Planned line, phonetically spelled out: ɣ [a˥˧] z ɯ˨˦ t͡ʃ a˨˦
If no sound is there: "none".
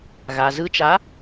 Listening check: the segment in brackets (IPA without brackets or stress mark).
a˩